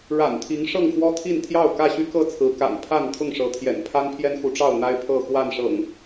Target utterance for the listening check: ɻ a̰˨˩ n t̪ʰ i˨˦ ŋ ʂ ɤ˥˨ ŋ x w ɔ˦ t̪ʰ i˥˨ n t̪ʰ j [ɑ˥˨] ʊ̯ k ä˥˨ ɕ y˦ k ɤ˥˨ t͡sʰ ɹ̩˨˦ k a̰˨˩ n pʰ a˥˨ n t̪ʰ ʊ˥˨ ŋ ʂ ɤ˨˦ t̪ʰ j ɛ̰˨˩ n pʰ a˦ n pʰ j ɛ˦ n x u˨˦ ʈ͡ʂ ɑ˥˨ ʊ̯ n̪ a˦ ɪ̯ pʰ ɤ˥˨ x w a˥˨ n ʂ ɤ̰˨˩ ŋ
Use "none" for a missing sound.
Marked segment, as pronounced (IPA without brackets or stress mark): ɑ˥˨